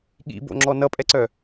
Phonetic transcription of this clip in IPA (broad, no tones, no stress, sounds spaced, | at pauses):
ɠ ḭ b o̰ ŋ͡ǁ ɔ n ʌ pʼ ɛ ǀ œ